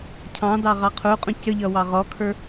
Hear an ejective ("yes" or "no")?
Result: yes